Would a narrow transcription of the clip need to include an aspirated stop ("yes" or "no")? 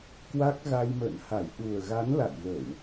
no